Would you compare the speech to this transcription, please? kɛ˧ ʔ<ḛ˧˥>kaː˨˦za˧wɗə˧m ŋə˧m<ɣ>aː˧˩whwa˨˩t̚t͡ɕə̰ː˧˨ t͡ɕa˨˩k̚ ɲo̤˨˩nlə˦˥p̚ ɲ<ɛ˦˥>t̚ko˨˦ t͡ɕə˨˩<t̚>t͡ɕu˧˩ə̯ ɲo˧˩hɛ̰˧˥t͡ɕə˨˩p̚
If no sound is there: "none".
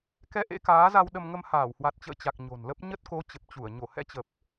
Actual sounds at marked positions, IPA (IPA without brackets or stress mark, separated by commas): ḛ˧˥, h, ə˦˥, p̚